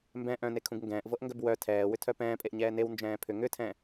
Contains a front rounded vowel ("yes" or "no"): yes